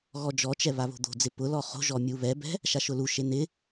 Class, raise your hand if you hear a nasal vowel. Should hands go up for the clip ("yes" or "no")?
no